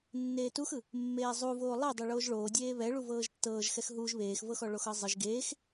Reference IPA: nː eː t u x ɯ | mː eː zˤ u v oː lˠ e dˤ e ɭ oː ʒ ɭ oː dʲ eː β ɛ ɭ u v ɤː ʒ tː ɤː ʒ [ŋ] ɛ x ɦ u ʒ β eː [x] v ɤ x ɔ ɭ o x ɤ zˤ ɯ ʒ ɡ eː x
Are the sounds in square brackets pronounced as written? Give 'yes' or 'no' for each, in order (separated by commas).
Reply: no, yes